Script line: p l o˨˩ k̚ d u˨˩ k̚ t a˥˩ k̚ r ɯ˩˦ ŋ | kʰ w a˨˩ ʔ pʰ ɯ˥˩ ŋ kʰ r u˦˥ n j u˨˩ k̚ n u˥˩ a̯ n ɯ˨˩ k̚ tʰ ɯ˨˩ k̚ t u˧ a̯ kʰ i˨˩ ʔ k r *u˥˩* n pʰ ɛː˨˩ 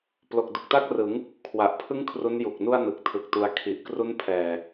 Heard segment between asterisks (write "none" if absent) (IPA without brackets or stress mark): u˦˥